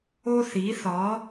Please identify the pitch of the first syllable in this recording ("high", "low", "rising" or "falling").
high